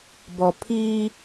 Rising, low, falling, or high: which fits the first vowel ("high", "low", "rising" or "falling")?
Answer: low